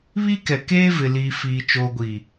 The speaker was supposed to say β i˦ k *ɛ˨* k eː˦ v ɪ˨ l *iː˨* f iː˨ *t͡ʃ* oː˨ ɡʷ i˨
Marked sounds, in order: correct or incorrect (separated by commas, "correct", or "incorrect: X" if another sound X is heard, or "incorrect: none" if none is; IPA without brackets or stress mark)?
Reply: correct, correct, correct